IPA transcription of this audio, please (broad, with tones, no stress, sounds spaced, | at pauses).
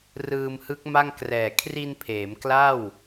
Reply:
r ɯː˧ m h ɯ˦˥ k̚ m a˥˩ ŋ k r ɛː˨˩ kʰ r i˧ n pʰ eː˩˦ m k l a˥˩ w